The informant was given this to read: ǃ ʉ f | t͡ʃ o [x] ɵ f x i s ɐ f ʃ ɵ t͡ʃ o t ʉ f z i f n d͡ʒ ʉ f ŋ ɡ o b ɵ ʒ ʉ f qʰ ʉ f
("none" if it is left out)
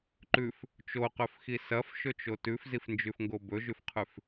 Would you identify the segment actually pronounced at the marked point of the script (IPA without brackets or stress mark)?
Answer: q